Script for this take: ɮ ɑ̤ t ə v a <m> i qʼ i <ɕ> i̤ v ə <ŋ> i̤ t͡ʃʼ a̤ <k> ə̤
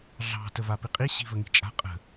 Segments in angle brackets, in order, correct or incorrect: incorrect: p, correct, correct, incorrect: qʼ

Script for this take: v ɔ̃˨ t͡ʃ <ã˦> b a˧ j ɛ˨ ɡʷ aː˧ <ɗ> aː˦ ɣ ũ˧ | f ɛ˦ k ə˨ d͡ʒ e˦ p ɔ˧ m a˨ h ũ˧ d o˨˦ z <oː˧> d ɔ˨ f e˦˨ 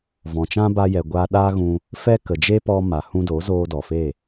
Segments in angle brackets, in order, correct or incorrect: correct, correct, correct

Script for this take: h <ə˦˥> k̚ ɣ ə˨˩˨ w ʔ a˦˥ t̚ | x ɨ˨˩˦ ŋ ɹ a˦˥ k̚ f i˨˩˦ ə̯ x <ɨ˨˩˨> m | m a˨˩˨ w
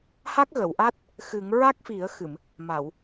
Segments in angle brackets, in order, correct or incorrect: incorrect: a˦˥, correct

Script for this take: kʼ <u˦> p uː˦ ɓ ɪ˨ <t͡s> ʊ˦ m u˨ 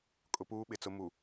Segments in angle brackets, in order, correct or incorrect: incorrect: ʊ˦, correct

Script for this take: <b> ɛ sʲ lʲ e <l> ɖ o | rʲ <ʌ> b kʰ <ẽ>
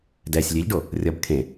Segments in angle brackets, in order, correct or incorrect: incorrect: d, incorrect: ʎ, correct, correct

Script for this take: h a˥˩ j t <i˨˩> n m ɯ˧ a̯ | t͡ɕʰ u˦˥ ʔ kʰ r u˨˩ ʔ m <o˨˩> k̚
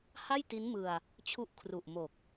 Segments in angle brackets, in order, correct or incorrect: incorrect: i˦˥, correct

